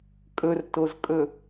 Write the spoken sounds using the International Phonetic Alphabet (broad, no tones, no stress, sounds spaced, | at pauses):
kʼ ɵ r t o z kʼ ɵ